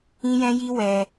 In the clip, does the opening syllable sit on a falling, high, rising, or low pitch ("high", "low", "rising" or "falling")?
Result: high